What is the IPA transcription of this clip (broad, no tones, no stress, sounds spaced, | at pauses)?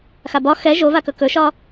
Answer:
x a b ɒ x ɛ ʒ o v a k ɵ k ɵ ʃ ɒ